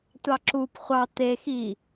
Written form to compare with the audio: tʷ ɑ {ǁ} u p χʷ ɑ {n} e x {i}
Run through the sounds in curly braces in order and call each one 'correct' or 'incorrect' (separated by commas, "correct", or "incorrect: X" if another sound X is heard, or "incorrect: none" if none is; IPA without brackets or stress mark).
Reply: correct, incorrect: t̪, correct